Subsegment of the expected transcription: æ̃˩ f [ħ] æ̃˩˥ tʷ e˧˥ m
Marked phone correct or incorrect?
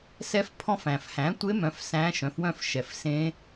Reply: incorrect: h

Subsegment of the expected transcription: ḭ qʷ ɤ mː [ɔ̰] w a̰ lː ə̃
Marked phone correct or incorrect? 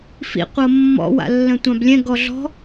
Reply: correct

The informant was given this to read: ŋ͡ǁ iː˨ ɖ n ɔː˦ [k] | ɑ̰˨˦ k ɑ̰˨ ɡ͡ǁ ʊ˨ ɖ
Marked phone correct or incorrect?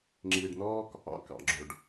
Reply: correct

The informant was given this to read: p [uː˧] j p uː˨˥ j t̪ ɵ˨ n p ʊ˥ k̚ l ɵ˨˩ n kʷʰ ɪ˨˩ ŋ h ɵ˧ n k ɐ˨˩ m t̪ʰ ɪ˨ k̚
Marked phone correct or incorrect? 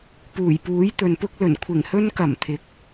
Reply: incorrect: uː˨˩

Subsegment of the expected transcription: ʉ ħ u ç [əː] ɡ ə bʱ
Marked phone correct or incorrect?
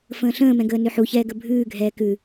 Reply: incorrect: ɛː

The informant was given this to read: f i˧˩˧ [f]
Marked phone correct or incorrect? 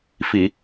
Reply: incorrect: none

